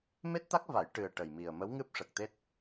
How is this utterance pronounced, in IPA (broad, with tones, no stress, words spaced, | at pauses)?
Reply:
me˦˥t̚t̪a˦˥k̚va˨˩˦j ʈɨ˨˩ə̯ ʈə˨˩jmi˨˩ə̯ mə˧˥wŋɨ˦˥p̚ʂə˨˩k̚t̪e˦˥t̚